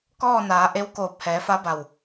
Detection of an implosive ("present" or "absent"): absent